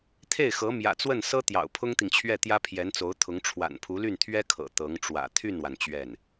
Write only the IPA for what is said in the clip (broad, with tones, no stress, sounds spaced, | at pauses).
t̪ʰ e˥˩ ɪ̯ x ɤ˧˥ m j ä̰˨˩ t͡s w ə˥˩ n s ɤ˥ t̪ j ɑ̰˨˩ ʊ̯ pʰ ʊ˥ ŋ t̪ i˨ ŋ t͡ɕʰ ɥ ɛ˥˩ t̪ j ä˥ pʰ j ɛ˧˥ n t͡s o˧˥ ʊ̯ t̪ʰ ʊ˧˥ ŋ ʈ͡ʂʰ w a̰˨˩ n pʰ u˧˥ l y˥˩ n t̪ʰ ɥ ɛ˥ kʰ ɤ̰˨˩ t̪ ɤ˧˥ ŋ ʈ͡ʂ w ä̰˨˩ t̪ʰ y˥˩ n w a˩ n t͡ɕ ɥ ɛ˥˩ n